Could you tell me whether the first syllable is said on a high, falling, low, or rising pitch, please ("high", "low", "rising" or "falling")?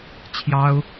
high